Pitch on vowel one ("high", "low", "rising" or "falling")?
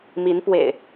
rising